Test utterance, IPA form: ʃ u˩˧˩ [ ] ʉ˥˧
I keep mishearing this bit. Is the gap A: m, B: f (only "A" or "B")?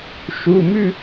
A